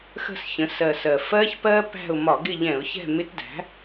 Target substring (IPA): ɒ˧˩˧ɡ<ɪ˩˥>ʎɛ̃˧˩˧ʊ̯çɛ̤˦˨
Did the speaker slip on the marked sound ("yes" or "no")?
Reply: yes